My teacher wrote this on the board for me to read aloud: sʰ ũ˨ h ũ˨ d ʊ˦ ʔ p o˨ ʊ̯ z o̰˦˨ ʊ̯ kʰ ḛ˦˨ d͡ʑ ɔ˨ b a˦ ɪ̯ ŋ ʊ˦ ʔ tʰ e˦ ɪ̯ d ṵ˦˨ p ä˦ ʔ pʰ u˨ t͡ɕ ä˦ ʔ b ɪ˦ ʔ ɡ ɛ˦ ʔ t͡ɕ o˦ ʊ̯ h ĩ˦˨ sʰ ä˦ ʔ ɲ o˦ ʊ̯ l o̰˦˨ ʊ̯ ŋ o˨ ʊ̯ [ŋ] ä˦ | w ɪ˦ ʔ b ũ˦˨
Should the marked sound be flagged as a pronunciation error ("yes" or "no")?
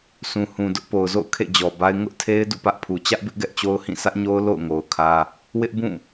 yes